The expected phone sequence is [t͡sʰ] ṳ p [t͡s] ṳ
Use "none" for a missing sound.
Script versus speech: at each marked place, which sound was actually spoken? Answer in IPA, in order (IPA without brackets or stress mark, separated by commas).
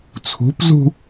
t͡sʰ, z